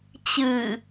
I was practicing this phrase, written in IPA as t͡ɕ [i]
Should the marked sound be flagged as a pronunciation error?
yes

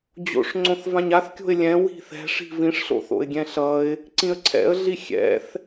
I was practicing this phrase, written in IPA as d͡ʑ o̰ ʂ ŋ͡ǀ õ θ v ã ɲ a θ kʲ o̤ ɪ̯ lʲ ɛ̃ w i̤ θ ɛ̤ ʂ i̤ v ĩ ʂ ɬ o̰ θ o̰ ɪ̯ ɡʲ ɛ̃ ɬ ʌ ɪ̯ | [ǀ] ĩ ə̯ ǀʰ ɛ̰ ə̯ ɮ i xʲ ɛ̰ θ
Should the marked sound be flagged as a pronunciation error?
no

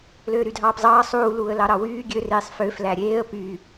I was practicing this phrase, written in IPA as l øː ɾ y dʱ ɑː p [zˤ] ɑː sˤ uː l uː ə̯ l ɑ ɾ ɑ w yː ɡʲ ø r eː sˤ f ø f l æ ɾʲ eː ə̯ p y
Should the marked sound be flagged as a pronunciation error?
no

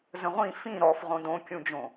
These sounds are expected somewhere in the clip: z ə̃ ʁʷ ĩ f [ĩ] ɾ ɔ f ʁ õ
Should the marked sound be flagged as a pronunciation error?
no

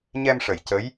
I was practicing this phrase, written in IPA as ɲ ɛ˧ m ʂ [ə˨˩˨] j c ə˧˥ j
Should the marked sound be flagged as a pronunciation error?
no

